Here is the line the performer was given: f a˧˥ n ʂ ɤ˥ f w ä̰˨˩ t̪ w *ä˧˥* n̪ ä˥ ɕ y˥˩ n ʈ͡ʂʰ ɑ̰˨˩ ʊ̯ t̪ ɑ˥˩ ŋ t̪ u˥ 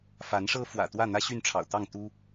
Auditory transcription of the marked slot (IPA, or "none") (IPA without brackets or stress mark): ä˥˩